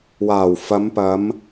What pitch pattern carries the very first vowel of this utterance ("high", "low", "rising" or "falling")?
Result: low